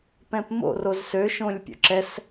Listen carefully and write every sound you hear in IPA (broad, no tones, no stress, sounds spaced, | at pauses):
p ɛ̃ p m o̰ r o z s ø ʃ õ lʲ pʲ o̰ ǁ ɛ s